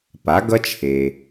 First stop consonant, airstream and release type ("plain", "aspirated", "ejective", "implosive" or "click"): plain